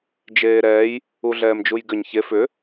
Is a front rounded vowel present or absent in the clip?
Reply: present